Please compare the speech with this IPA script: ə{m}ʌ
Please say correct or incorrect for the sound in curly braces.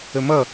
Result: correct